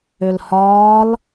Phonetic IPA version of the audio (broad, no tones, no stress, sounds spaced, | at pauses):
ø l h ɒː l